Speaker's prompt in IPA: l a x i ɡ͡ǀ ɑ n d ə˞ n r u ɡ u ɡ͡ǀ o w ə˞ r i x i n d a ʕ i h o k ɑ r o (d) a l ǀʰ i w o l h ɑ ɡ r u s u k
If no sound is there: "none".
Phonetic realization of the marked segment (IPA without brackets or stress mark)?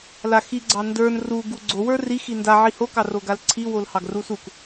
ɡ